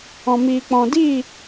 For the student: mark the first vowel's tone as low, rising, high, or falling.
low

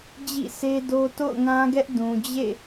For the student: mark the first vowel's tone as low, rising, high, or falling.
falling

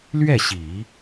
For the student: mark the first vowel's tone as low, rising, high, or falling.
falling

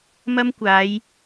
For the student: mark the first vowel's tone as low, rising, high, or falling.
high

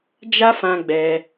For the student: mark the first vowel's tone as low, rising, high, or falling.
high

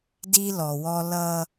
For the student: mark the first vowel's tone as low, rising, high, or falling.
high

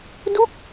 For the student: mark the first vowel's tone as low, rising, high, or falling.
falling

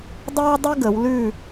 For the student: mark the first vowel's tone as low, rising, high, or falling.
high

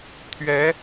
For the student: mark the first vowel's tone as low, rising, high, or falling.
rising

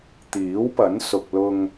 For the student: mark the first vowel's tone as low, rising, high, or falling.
rising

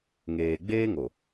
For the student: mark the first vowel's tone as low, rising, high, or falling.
low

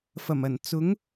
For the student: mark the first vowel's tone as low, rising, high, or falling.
low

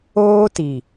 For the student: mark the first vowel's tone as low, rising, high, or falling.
high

